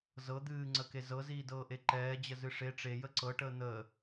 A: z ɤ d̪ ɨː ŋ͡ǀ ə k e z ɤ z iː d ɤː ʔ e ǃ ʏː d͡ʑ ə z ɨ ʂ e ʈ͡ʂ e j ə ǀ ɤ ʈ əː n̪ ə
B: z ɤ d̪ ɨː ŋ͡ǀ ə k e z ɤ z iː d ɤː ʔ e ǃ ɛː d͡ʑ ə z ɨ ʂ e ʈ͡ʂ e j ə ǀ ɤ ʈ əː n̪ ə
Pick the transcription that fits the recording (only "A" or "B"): B